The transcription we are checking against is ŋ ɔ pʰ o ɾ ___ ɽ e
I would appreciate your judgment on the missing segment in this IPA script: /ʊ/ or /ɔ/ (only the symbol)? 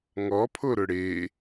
ʊ